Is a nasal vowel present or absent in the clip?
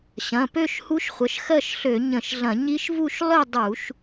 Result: present